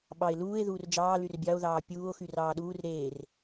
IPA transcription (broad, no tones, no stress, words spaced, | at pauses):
ɓɑe̯luːe̯ ðuːrd͡ʒɑː lyrbʲɑo̯ ðɑːpʲuːo̯ xyrɑːɗuːr ɾeːr